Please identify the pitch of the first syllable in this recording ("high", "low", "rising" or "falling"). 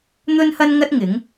high